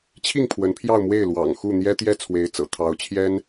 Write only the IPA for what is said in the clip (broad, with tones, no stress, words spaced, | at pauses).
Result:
t͡ɕʰi˥˩ŋ pʰwə˧˥npʰjɑ˥˧ʊ̯mwe˥˩ɪ̯ lwɑ̰˨˩ŋ xu˥˩n̪jɛ˥ t̪jɛ˥˩ t͡sʰwe˧˥ɪ̯t͡sɤ̰˨˩ t̪ʰɑ˧˥ʊ̯t͡ɕʰjɛ˥n